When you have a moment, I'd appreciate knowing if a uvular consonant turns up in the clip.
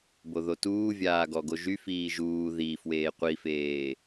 yes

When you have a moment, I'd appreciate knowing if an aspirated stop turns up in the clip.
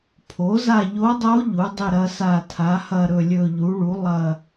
yes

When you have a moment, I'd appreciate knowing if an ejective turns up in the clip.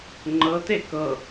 no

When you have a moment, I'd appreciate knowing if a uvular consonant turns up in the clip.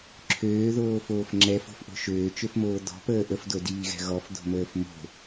no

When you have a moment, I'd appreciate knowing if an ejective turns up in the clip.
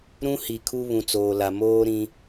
no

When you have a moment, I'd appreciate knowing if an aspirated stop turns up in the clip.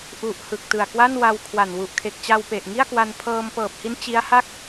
yes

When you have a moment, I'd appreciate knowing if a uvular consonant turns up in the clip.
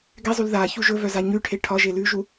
no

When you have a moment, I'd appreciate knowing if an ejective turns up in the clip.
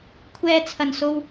no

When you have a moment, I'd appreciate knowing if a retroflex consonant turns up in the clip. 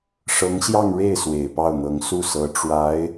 yes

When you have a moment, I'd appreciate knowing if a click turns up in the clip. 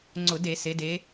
yes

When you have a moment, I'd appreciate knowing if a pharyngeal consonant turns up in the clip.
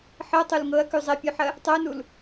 yes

